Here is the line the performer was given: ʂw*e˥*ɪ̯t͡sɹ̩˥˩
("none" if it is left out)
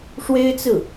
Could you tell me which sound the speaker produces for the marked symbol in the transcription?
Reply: e˥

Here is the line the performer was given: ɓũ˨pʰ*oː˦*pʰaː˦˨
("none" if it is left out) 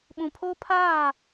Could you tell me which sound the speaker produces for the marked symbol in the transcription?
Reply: oː˦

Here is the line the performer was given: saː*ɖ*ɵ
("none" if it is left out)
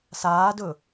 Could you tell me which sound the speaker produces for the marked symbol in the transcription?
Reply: d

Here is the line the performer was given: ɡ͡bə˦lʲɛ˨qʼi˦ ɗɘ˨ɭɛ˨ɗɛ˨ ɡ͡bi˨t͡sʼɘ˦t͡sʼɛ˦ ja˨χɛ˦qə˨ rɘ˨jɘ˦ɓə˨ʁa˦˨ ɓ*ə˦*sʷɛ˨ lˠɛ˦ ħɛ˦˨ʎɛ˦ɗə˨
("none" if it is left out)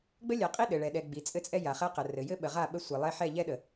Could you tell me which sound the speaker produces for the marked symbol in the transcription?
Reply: ə˦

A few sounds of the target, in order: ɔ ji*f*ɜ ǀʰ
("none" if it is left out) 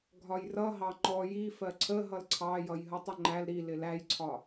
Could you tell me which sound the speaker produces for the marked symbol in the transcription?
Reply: f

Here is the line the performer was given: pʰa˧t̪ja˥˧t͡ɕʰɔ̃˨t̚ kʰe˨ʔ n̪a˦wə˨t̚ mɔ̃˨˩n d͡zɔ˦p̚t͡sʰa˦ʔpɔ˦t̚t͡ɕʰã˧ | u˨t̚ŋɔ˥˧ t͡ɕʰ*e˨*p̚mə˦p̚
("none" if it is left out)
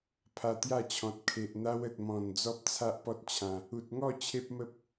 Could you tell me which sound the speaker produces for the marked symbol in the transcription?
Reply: e˦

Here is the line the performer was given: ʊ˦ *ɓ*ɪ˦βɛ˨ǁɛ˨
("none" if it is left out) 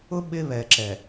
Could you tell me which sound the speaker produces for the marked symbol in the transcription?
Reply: ɓ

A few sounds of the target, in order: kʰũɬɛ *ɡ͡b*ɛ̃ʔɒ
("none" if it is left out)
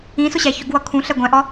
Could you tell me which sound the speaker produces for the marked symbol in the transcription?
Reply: ɡʷ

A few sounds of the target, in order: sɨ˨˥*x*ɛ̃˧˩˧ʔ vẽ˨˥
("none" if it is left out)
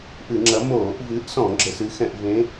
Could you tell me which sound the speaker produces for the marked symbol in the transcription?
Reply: x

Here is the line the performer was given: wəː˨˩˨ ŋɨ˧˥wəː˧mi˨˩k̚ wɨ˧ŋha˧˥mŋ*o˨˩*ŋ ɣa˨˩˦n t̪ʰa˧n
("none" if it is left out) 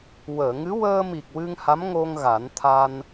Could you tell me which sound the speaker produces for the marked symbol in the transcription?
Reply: o˧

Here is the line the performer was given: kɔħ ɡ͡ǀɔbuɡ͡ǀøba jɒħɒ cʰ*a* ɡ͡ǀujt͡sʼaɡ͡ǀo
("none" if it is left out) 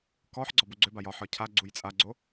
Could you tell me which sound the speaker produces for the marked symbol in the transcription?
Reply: a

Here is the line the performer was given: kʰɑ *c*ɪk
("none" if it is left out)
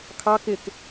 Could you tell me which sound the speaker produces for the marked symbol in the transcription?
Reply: k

